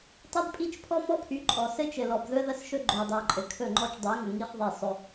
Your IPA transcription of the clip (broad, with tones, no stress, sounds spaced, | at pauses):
tˤ ɵ˦ d pʼ i˦ t͡ʃ pʰ ɔ˦ m ɔ˦ pʰ y˨˦ ǃʼ ɔ˨ s ɘ˦ t͡ʃ ɘ˨ l ɔ˨ b ð ɵ˦ ə̯ ð ɐ˦ s ʃ ɵ˦ ɡ͡ǃ ɵ˨ ɪ̯ dˤ ɵ˨ ʊ̯ ǃʼ ɘ˨ kʰ ɵ˦˨ ŋ͡ǃ ɔ˦ t͡ʃ dˤ y˨˦ ʊ̯ ŋ ə˨ ŋ i˦ χ ðˤ i˦˨ sˤ ɵ˦